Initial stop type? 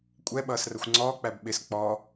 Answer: ejective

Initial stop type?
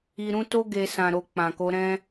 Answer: plain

